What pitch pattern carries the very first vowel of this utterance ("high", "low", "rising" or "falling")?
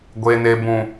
low